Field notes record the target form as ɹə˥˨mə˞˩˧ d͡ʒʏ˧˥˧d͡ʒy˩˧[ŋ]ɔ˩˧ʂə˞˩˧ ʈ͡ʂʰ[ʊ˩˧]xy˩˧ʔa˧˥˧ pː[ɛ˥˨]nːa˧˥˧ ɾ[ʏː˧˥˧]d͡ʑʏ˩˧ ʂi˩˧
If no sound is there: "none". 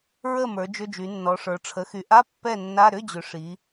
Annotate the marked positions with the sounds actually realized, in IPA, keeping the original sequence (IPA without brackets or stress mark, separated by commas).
nː, ə˩˧, ɛ˥˨, ʏ˧˥˧